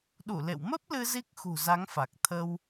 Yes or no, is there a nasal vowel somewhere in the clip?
no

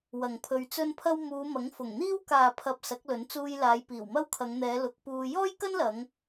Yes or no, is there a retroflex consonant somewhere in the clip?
no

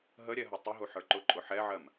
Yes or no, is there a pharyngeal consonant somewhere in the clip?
yes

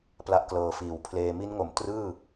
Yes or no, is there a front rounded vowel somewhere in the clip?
no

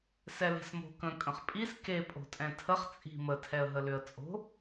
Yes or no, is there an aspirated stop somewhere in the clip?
yes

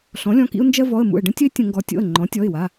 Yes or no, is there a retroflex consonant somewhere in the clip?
yes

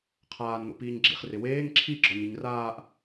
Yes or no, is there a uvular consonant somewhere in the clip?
yes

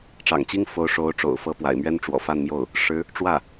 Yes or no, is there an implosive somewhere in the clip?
no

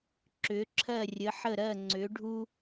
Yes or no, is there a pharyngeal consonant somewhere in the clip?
yes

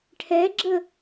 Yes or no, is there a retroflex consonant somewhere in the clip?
yes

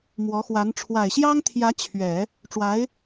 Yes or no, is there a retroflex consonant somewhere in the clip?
yes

